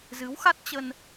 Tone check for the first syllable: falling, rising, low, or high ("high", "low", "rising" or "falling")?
rising